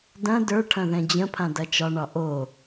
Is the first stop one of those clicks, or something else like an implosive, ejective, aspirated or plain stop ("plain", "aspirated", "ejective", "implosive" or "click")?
plain